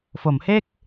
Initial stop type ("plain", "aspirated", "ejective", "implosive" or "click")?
plain